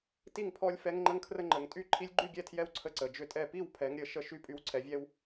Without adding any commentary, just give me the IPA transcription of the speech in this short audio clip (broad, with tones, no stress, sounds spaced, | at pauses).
t i˥˨ ŋ pʰ ɔ˦ lʲ f ɛ˦ ŋ ŋ͡ǃ ə˦ ŋ kʰ r ə˦ ŋ͡ǃ ə˨˦ ŋ tʼ y˥˨ ǃʰ i˦ lʲ ɡ͡ǃ y˥˨ ɡʲ ɛ˥˨ tʰ j ɛ˦ w ǀʰ ə˥˨ ǀ ə˨˦ d͡ʒ ʏ˥˨ tʼ ɛ˥˨ p i˥˨ w pʰ ɛ˨˦ ŋ ɾʲ ə˨˦ ʃ ə˦ ʃ y˦ pʼ y˨˦ w ǀʰ ɛ˨˦ vʲ ɛ˦ w